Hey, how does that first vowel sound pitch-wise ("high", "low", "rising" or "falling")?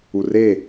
low